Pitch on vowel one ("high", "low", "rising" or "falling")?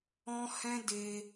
high